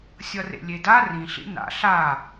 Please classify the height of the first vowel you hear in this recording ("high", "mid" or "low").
mid